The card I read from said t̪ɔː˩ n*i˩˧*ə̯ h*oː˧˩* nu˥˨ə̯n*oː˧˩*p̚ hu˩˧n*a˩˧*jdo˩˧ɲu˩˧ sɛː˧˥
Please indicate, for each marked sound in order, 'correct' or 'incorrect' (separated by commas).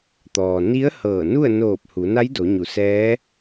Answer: incorrect, incorrect, correct, incorrect